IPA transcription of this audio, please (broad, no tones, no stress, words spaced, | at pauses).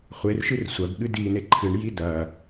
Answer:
χʷerʃɨr sʷɐɡ ɠɨdine ǃʰɨɳji dɐ